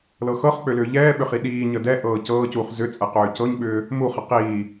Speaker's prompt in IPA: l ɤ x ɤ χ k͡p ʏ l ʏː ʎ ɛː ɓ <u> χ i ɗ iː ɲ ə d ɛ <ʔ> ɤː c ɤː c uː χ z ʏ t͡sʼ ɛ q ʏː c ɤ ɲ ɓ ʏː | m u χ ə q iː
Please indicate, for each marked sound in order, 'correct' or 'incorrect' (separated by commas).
incorrect, correct